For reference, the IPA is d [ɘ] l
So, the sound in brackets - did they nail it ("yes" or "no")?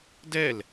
no